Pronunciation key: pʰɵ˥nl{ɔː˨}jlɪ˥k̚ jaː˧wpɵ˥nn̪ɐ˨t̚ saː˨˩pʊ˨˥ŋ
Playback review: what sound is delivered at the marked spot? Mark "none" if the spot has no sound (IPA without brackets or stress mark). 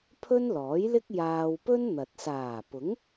ɔː˨˥